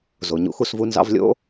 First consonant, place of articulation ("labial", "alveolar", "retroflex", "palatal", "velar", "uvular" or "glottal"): alveolar